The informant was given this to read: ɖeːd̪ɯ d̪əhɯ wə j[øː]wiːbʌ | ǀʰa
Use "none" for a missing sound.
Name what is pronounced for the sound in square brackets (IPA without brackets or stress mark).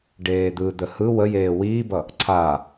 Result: eː